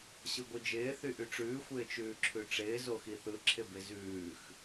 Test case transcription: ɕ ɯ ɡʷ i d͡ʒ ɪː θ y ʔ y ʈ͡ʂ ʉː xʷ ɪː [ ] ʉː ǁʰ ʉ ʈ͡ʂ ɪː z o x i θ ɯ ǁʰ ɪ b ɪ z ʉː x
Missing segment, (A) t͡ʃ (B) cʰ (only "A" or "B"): A